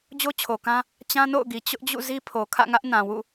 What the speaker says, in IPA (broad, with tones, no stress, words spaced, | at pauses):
d͡ʑo˦t͡ɕʰo˨kã˦ | t͡ɕã˦no̰˦˨ʊ̯ɡi˨ t͡ɕʊ˦ʔd͡ʑṵ˦˨ zi˦pʰo˨ kʰä̰˦˨ŋä˦ʔ nã˨wṵ˦˨